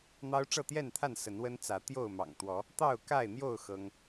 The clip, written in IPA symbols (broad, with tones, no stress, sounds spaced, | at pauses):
n̪ ɑ˦ ʊ̯ ʈ͡ʂ ɤ˥˨ t̪ j ɛ˥˨ n t̪ʰ a˥˨ n s ə˨˦ n w ə˦ n t͡s ä˨˦ t̪ j o˥˨ ʊ̯ m ɑ̰˨˩ ŋ t̪ w ɔ˨˦ | t̪ ɑ˥˨ ʊ̯ k a˥˨ ɪ̯ n̪ j o˥˨ ʊ̯ x ɤ˦ ŋ